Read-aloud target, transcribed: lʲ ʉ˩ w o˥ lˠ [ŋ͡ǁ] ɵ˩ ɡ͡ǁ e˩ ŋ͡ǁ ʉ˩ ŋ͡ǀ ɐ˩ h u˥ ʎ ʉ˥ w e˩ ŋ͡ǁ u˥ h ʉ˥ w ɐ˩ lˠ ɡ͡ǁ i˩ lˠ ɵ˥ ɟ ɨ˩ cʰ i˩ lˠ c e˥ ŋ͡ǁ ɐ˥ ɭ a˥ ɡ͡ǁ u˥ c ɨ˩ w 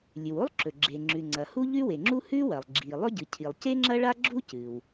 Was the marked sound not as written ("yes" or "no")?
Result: yes